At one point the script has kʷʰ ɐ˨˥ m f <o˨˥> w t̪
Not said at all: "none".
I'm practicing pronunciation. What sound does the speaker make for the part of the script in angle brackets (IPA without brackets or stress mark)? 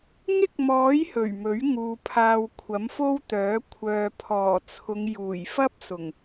o˥